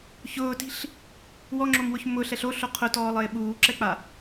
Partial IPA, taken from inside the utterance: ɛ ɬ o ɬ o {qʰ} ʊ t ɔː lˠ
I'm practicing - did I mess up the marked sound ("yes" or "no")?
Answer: no